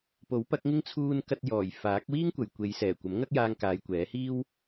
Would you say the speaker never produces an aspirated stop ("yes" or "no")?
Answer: no